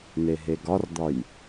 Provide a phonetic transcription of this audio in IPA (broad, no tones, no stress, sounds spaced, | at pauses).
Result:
n̪ e ɦ e ɡ ɒ r d̪ ɒ j